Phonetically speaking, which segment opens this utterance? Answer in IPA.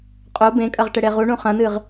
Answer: qʼ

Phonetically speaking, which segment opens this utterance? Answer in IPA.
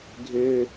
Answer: ɡʱ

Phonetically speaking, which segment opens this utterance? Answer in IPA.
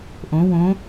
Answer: ʔ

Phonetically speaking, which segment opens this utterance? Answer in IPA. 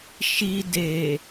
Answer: ʃ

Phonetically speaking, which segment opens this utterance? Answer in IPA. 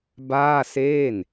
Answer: b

